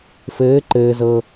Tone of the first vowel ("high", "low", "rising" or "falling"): rising